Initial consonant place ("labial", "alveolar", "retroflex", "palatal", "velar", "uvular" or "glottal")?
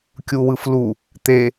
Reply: velar